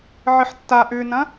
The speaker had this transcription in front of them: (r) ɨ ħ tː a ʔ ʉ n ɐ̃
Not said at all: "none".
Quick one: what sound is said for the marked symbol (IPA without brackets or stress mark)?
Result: ʕ